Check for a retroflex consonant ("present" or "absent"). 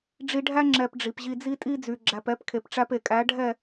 present